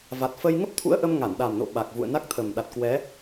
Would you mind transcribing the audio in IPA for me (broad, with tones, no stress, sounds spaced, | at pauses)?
v a˨˩ t̚ f ə˧ j ŋ ə˦˥ p̚ t̪ʰ ṵ˧˥ ə̯ ʔ ə˧ m ŋ a˧˩ n ɗ a˨˩ m n o̰˧˨ ɓ a˨˩ k̚ v ṵ˧˨ ə̯ n a˦˥ k̚ t̪ʰ ə˨˩ m ɗ a˨˩ t̚ k w ɛ˨˦